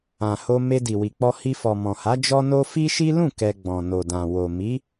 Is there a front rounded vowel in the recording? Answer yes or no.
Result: no